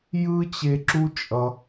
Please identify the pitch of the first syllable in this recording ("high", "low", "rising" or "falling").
high